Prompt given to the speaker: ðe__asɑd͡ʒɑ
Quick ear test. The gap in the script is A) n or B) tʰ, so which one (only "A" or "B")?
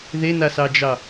A